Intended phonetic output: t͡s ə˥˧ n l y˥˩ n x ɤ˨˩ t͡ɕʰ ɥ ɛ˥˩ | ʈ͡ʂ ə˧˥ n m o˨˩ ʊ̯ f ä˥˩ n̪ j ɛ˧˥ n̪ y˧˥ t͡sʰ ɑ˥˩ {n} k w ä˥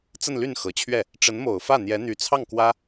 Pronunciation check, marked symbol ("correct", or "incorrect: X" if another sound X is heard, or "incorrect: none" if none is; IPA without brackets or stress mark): incorrect: ŋ